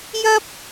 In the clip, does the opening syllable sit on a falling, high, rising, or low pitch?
high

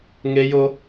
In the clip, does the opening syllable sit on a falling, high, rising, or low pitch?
high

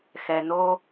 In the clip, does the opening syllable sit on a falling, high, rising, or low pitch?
low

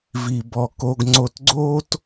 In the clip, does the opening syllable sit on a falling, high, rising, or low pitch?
low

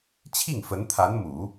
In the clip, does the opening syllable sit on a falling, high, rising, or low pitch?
falling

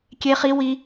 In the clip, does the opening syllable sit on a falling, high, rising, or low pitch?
high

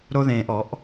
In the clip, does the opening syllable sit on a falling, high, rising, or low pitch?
high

